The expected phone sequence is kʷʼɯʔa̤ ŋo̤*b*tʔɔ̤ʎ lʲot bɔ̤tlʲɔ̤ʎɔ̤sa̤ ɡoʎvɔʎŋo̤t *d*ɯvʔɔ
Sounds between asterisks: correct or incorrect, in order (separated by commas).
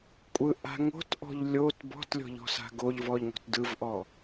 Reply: incorrect, correct